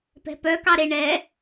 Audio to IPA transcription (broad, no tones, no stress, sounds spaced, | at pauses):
p ɛ̤ p œ k ɑ ɾ e ɳ ɛ